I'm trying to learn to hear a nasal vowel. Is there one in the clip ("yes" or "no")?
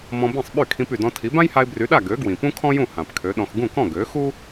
yes